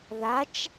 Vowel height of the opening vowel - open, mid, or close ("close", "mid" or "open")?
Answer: open